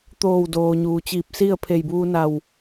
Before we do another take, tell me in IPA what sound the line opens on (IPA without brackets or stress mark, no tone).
t̪